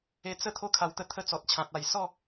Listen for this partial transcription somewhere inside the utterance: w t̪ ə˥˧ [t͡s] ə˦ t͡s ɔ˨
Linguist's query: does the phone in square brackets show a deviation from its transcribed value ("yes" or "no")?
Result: yes